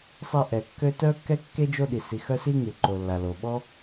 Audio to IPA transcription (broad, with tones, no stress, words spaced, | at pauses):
sˤe˦ʔɛ˩kːø˥ tœ˥kːɛ˥kːe˥ d͡ʒo˦ɗi˩si˨xœ˦ si˥ŋy˩ǃo˩lːa˩ lo˩ɓɔ˥